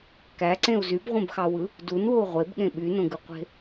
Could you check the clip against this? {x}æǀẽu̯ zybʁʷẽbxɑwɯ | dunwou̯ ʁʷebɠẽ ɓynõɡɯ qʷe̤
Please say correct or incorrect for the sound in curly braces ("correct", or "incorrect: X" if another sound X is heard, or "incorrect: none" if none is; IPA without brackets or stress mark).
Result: incorrect: k